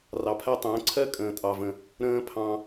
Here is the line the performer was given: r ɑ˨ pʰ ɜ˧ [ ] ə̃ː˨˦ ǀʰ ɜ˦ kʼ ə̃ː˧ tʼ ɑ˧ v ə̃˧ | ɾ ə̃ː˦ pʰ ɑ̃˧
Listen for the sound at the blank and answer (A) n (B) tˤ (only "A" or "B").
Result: B